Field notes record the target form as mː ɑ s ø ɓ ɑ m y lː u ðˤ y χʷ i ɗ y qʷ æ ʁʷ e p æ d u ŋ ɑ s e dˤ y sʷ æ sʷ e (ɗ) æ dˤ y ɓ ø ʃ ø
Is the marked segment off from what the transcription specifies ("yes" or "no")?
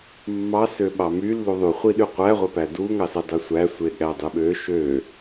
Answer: yes